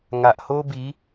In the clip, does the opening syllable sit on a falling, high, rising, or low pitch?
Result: low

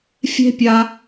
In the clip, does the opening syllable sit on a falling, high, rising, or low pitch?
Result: high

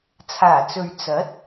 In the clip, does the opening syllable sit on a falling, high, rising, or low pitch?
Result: low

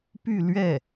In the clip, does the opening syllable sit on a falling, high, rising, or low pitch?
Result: falling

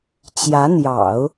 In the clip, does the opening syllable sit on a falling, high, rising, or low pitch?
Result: rising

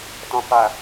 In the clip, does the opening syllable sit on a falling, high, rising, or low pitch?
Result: low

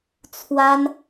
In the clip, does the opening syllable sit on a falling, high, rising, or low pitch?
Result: high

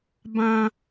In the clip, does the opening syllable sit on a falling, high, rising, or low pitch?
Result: high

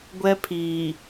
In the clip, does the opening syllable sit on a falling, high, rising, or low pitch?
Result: high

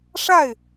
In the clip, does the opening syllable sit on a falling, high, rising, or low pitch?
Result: falling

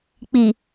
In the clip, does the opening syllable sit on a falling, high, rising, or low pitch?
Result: low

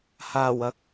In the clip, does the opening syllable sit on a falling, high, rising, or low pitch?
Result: low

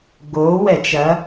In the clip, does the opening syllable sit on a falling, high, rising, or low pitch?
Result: rising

